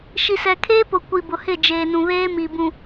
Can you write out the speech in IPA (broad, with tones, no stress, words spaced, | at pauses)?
ʃi˨sɛ˨kʰeː˦pʊ˨ kʷi˨bʊ˨hɪ˦˨ d͡ʒeː˨nũ˨ βeː˦mi˨bũ˨